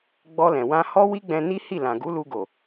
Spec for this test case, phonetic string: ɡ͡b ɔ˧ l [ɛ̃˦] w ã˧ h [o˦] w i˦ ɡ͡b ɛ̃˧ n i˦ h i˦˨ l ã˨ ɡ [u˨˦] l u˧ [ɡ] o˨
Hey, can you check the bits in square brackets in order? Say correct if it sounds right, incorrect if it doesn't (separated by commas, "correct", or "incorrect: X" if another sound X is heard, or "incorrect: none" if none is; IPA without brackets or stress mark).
incorrect: ɛ̃˨, incorrect: ɔ˦, correct, correct